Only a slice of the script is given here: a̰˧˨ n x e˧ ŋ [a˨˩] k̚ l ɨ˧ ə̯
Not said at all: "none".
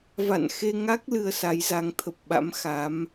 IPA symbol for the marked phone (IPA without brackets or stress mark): a˦˥